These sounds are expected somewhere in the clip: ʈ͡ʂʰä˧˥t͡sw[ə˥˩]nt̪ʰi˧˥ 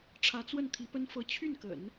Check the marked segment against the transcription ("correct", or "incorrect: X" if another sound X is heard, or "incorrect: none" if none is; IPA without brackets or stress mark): correct